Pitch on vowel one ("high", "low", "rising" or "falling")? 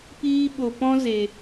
high